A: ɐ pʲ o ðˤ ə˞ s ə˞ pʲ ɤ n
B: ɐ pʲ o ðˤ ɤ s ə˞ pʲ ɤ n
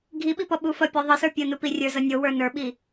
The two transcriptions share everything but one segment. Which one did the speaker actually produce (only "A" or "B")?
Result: B